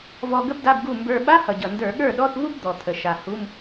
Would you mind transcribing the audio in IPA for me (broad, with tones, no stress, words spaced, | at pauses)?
vɔ˧ ɡə˥bda˧˥˧bɡu˥˩ mbə˞˧ ɓa˧˥˧hʌ˨˩ɟʌ˨˩ ndə˞˧˩˧ɠə˞˥˩ɗɔ˧˥˧θvu˥b d̪ɔ˨˩t̪ʰə˨˩ ʃa˨˩hu˧˥˧m